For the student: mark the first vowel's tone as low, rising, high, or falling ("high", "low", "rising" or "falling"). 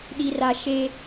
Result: high